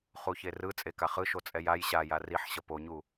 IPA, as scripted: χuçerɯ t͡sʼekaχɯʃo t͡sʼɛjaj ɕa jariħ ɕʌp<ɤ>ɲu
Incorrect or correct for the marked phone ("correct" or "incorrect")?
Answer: incorrect